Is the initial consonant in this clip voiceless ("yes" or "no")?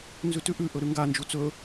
no